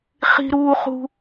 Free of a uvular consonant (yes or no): no